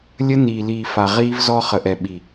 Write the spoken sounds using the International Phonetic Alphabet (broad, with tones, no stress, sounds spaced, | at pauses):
lʲ ə˦ n iː˨ l iː˨ f a˨ ʁ iː˦ v z ɔ˦ χ ə˨ ʔ ɛ˨ ɓ i˨